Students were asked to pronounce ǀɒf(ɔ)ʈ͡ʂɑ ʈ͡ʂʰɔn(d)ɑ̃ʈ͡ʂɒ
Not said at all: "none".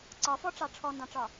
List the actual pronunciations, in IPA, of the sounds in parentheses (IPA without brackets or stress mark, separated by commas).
ɔ, d